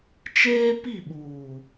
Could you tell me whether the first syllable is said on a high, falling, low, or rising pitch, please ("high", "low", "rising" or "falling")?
high